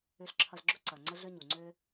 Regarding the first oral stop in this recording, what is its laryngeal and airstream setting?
click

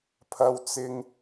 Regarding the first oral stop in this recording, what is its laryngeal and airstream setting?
aspirated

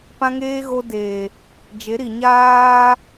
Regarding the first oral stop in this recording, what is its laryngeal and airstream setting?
plain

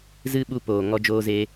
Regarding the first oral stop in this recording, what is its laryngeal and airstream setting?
implosive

